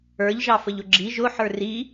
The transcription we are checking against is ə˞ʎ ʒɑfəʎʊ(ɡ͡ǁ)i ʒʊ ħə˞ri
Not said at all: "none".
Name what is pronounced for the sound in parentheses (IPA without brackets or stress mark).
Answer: ɡ͡ǁ